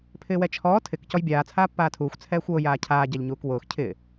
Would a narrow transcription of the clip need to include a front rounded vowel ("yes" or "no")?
no